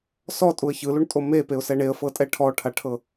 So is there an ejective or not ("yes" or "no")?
yes